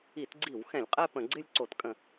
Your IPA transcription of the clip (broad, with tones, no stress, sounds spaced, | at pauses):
i˧˩˧ t ɡ͡ǀ i˧˩˧ w x ɛ̃˧˩˧ lʲ qʼ ɛ˥˧ p ə̃˧˩˧ ɡ͡ǀ ɪ˥˧ lʲ ǀ o˧˩˧ t kʼ ə̃˧˩˧